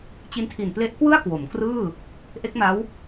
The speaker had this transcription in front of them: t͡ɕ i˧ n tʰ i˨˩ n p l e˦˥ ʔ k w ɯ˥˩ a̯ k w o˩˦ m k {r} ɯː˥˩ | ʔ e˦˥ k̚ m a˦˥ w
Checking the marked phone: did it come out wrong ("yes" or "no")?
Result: no